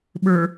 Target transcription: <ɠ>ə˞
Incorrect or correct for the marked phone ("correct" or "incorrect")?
incorrect